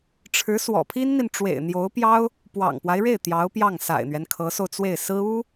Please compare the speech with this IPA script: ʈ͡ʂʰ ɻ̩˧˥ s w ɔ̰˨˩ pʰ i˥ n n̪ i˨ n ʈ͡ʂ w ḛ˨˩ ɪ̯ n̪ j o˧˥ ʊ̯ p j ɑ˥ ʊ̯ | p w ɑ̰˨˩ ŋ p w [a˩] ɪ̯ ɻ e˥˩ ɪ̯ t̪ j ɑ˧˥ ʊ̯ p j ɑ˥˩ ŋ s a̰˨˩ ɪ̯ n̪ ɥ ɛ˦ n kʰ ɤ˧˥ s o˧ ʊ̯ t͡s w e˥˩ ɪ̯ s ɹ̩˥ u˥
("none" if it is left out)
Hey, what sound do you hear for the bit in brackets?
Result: a˦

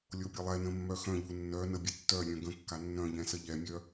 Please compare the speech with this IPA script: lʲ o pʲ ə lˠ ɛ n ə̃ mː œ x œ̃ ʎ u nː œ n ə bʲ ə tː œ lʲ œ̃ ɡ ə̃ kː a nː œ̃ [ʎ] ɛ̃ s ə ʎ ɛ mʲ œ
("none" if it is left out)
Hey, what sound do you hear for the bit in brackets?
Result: ʎ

